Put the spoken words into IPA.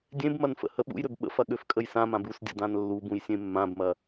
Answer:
dʲ ẽ b m ɐ n f ə̰ h ə ɓ ṵ j ɾ ø b ɓ ə̰ f ɐ ɠ ø f kʼ ə j s ã m ã b u s dʲ ə̰ d ã n lː u b ũ j sʲ ẽ mː ã b m ɐ

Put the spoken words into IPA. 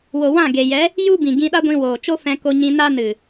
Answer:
w o˨ w ã˦˨ ɡ e˨ j ɛ˨˦ | j u˦ b ĩ˨ ɡ ĩ˧ ɗ a˦ ɡʷ ĩ˧ w oː˨ t͡ʃ o˦ f ɛ̃˧ k o˧ ɲ ĩ˧ n a˦ n ɨ˨

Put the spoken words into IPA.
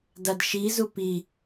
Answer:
d a d ʃ i z u p i

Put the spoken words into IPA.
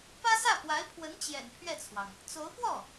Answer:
p ä˥ s ä˥˩ p w a˧˥ ɪ̯ pʰ w ə˧˥ n t͡ɕ j ɛ̰˨˩ n pʰ ɥ ɛ˥˩ t͡sʰ w ɑ˩ ŋ | t͡s o˧˥ ʊ̯ p w ɔ˥˩

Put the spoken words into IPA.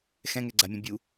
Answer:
x ɛ̃ ŋ ɛ ɡ͡ǀ a mʲ ɛ̃ bʲ u

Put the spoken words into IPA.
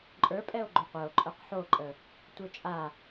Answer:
ǃʼ ə˞ pʼ ɛ o̯ ɡ͡ǃ o qʷ ə˞ o̯ ǃʼ ə˞ q ħ o ǃʼ ə | tʷ ə˞ t͡ʃʼ a

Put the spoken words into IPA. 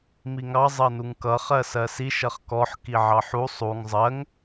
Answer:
m i ŋ ɑ zˤ ɜ n u ŋ k ʌ χ ɜ s ɜ s i ʃ ʌ χ k ɔ ħ k i ʕ ɑ ħ u sˤ u ŋ zˤ ɜ ŋ

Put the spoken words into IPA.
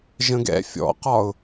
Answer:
ʒ ə̃ ɡ ɛ̰ fʲ ɔ̰ q ɒ ʊ̯

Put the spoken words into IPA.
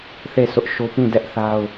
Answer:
θ e˦˨ s ʊ˦ ʔ ʃ o˦ p ĩ˦˨ d ɛ˦ ʔ θ a˦ ʊ̯

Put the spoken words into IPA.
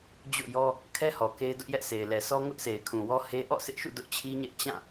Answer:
d͡ʑ o̰˦˨ j ɔ˦ | kʰ ɛ˦ h ɔ˨ k e˦ ɪ̯ d ʊ˦ ʔ j ɛ˦ ʔ sʰ e˨ ɪ̯ l ɛ˨ s ɔ˦ ŋ ʊ˦ ʔ sʰ e˨ ɪ̯ kʰ ũ˨ w ɔ˦ h e˦ ʔ ɔ̰˦˨ s ɪ˦ ʔ ʃ ṵ˦˨ d ʊ˦ ʔ t͡ɕʰ i˦ ɲ ɛ˦ ʔ t͡ɕ ã˦˨

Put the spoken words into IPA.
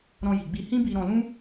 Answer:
ɾ ɔ̃˧ j i˨ ɡ͡b i˧ h ĩ˦ b i˧ ɾ ɔ̃˧ l ũ˦

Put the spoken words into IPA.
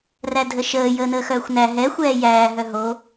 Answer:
r æ dʱ ə ʃ əː j əː n əː x œː xʷ n æ ɦ ɛ xʷ ɛː j æː ɦ œ ɦ o

